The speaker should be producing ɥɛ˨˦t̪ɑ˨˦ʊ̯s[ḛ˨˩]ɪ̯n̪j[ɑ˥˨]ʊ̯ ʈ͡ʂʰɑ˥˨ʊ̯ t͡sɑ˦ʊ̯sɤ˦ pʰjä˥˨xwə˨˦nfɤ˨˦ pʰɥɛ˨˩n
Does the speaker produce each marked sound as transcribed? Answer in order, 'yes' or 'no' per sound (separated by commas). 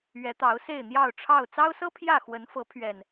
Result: no, yes